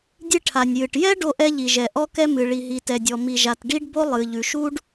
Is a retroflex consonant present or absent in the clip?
present